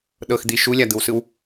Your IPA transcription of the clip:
ɗɤxd̪i ʃulʲad̪ɯwsɯw

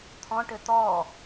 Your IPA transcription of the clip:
t̪ʰɔ̃ʈɘ t̪ɔ

